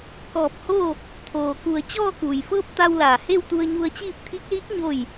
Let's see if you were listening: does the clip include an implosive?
no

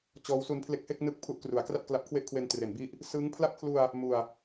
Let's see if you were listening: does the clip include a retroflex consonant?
no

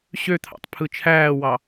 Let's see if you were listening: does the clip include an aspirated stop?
yes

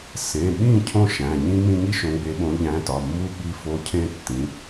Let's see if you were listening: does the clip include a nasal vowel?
yes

